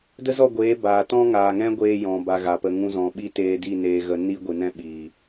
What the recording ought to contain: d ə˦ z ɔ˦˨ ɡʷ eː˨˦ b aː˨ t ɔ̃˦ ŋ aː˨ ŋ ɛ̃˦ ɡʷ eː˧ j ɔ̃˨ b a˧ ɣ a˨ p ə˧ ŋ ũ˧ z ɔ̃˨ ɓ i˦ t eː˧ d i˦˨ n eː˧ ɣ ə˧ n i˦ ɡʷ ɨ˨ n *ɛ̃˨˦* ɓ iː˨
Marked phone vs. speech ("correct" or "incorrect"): incorrect